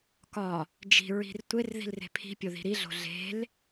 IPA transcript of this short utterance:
kɒ | d͡ʒi̤ɹi̤r tʷer ði̤lre̤pʰi̤pʲo ði̤ɾiɮo̤ ɮe̤l

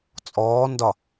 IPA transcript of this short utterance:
t͡sʼɔːndɒ

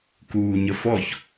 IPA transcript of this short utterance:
kuːɲəfɔç

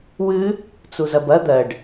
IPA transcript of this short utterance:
wɨ | t͡suzɐbɐ d̪ɜɖ

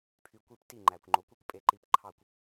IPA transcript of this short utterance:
pʰy˧kʷi˥pti˥˩ ŋ͡ǃæ˩kʷŋ͡ǃo˩˥ kʷi˥kʷpʼe˧ ǃi˧pǃʰɑ˥˩kʷ

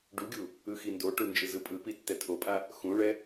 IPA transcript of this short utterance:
ɖuɡʲu | ɯxindoʈu nd͡ʒɯzɯpʼɯpi tːɛtʰopʼa | xũɭɛ

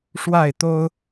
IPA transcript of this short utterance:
ʂwa˥˨ɪ̯t̪o˦ʊ̯

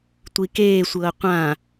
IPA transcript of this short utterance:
tʷikeːsʷɤː qʷã

